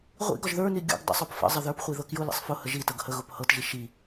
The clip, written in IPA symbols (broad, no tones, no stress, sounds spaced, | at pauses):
ʁʷ ḭ ɡ ɒ ʒ ð ə˞ n i ɡʲ o̰ ɡ dˤ ə̰ sˤ o p f ə̰ zˤ ə ð ə˞ p χʷ i ð ɤ k j ʊ l ḭ sˤ f ʊ h ə ʒ i t ɤ ɡ h ə ɣ ʊ p h ɤ t ʒ i ʃ i